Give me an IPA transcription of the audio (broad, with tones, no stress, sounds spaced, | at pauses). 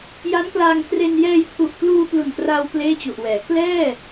j a˦˥ n k l aː˧ ŋ k r e˧ n j ɛː˧ j pʰ u˨˩ ʔ k l uː˧ p l u˨˩ n k r aː˧ w p l eː˥˩ t͡ɕ u˨˩ ʔ w ɛː˩˦ k l ɛː˥˩